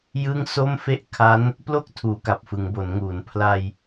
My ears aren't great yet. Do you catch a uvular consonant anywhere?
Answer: no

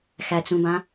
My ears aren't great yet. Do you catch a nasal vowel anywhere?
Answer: yes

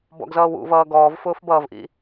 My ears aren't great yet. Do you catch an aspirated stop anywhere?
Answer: no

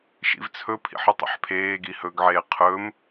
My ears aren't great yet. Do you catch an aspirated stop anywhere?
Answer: yes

